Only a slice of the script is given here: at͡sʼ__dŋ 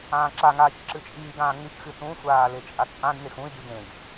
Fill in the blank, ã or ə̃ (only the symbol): ã